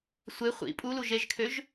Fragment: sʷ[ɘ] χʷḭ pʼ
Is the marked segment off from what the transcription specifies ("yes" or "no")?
yes